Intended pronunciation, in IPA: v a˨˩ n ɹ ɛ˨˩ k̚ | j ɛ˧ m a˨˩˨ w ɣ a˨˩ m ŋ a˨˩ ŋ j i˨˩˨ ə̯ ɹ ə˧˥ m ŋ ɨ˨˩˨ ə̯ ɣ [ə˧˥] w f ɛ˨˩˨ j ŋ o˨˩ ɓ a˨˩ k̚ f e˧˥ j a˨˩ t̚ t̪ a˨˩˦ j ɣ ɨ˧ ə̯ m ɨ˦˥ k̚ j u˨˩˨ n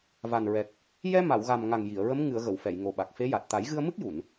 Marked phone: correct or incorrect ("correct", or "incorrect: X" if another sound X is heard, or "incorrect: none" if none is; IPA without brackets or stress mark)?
incorrect: ə˨˩˨